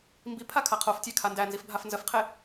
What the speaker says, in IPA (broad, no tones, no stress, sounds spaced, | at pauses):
m b i pʰ a kʰ a qʰ o f tʲ æ kʰ a n d æ n z i f bʱ a f n z ə f qʰ e